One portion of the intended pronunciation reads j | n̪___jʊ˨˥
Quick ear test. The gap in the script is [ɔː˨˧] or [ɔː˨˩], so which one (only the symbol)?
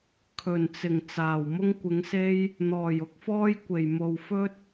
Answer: ɔː˨˩